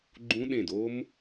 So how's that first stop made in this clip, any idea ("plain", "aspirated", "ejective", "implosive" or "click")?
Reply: click